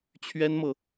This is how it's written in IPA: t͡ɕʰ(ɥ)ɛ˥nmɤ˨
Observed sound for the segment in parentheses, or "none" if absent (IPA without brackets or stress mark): ɥ